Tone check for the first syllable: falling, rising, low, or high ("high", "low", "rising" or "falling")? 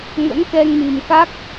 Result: rising